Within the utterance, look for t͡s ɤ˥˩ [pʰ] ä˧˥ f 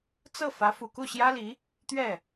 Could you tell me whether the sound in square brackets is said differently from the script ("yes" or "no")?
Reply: yes